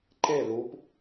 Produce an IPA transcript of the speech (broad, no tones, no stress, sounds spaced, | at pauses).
ǃ e l u p